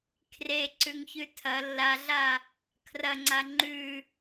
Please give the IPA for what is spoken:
kʰ r e ǀ ʉ ŋ ç ʉ tʰ ɐ lː a ɮ a | kʰ r ɐ ŋ͡ǀ a ŋ͡ǃ ʉ

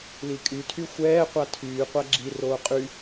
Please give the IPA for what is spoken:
l i kʼ y tʰ y xʷ ɛː qʷ a tʰ yː qʷ a ɡ͡ǁ i r oː qʼ y

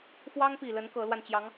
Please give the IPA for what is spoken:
f w ɑ˥ ŋ p i˨˩ l ə˧˥ n k ɤ˧˥ l w a˧ n t͡ɕ j ɑ˧˥ ŋ

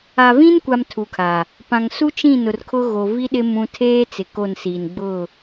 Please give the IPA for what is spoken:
a˨ v ĩ˦ n kʷ a˨ m tʰ u˨ kʰ a˨ | p ã˨ ŋ s u˦ t͡ʃ ĩ˦˨ n ʊ˨ r kʰ ʊ˦ ɣ o˨ v i˦ ɗ ɪ˦ m ũ˦ tʰ eː˦ t͡s ɪ˨ k o˦˨ n s iː˨ n ɡ͡b ʊ˦˨

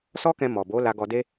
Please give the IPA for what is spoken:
s ɔ˦ k ɛ̃˧ m ɔ˨ b o˨˦ l a˧ ɡ ɔ˧ d e˦

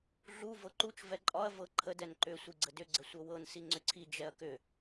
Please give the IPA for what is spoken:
ɮ u v ɤ ǃ u t͡ʃ v ɛ ǃʼ ɒ ɐ̯ v ɤ ǃʰ ə d ɛ n ǃ ʏ sʷ i ɡ͡ǀ ə d ʏ ɡ͡ǀ ə sʷ ɤ w ɤ n s i ŋ͡ǀ ʏ ǀʰ i d͡ʒ ɛ ɐ̯ k ʏ

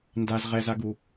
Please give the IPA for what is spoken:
n d a z ʁ ɛ z a ɡ u

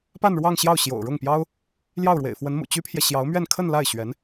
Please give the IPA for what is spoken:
p a˥˧ n ɻ w ɑ˥˧ ŋ ɕ j ɑ˥˩ ʊ̯ ɕ j o̰˨˩ ʊ̯ ɻ ʊ˥˩ ŋ p j ɑ˥ ʊ̯ | l j ɑ˥˩ ʊ̯ ɻ w ḛ˨˩ ɪ̯ f w ə˧˥ n m ṵ˨˩ t͡ɕ y˥ pʰ j ɛ˨ ɕ j ɑ˧˥ ʊ̯ m ɥ ɛ˥˧ n kʰ ə˥˧ n l a˥˩ ɪ̯ ɕ ɥ ɛ˧˥ n

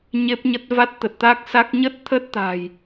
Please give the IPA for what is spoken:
ɲ e˦˥ p̚ ɲ ə˦˥ t̚ v a˦˥ t̚ t̪ ə˨˩ t̚ t̪ a˦˥ k̚ s a˦˥ k̚ ɲ ə˦˥ t̚ t̪ʰ ə˦˥ t̚ t̪ a̤˨˩ j

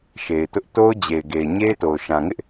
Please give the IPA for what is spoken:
ʃ e˨ ɪ̯ t ʊ˦ ʔ t o˦ ʊ̯ d͡ʑ e˨ ɪ̯ ɡ e˨ ɪ̯ ɲ e˦ ɪ̯ t o˨ ʊ̯ ʃ ã˨ ŋ ɪ˦ ʔ

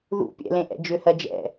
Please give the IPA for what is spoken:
ð ṵ pʲ ɛ̰ l ẽ ʔ ɛ̰ d͡ʒ ʏ h ɜ d͡ʒ ɛ̰

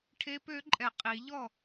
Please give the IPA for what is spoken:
ʈʰ e˦˥ p ø˦˥ ǃʼ ɛ˨ qʼ i˨˩˦ ʎ ɔ˥˩

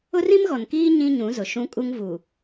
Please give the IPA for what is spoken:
ʊ˦ r ĩ˦ m ɣ ɔ˨ n k iː˦ ɲ ĩ˦ ɲ ũ˨˦ z ʊ˨ ʃ ũ˦ kʼ u˦ ŋ v u˨

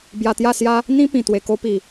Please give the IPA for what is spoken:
b j a˧ t̪ j a˥˧ s j a˦ | n̪ ĩ˦ p ĩ˨˩ t̪ w e˨˩ k o˧ p i˨˩

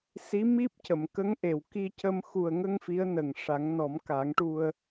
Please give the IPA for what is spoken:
s i˧˥ m i˦˥ p̚ c ə˨˩˨ m k ə˧˥ ŋ ʔ e˨˩˨ w k i˧ c ə˧ m x u˨˩ ə̯ ŋ ə˧ ŋ f i˧˥ ə̯ n ə˨˩ ŋ ʂ a˨˩˦ ŋ n ɔ˨˩˦ m k a˨˩˦ ŋ ʈ u˧ ə̯

